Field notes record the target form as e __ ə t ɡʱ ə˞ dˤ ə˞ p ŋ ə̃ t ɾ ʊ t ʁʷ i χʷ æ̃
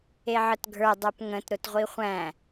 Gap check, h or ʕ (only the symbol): ʕ